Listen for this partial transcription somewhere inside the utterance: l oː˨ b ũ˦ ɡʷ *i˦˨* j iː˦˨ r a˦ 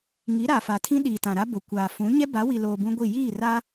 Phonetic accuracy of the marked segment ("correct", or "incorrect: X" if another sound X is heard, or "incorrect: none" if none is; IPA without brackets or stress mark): correct